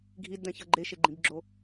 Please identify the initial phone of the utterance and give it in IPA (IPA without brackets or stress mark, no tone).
ɡʱ